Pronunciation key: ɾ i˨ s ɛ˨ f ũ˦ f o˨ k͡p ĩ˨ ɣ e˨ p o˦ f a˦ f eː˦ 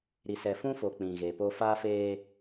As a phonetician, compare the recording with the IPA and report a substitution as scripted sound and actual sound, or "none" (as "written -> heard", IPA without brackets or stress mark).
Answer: none